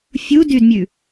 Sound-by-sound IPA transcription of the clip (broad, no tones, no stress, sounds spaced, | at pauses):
fʲ u d y d mʲ ʉ